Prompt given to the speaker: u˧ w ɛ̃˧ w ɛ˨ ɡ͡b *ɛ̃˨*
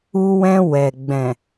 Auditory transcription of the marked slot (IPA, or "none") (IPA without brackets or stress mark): ɛ̃˨